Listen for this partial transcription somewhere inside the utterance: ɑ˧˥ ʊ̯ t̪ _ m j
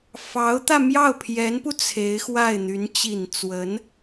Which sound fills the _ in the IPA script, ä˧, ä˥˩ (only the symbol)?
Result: ä˧